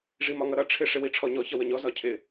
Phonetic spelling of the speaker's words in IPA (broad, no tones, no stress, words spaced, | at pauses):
ʐimɒŋʌɾʌ ʈ͡ʂʰɪ ʂɪwiʈ͡ʂʰɔɲɔ çʌwəɲɔ zɒcʰɪ